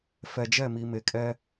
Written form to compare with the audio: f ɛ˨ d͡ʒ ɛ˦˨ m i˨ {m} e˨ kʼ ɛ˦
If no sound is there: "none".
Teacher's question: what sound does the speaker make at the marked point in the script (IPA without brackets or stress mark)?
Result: m